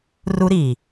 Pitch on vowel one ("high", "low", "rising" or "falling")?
high